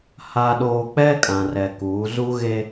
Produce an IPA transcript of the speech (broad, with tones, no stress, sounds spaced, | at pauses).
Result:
h a˨ ɗ oː˨ k͡p ɛ˦ kʼ ã˨ r ɛ˨ k uː˨˦ z u˦ ɣ e˦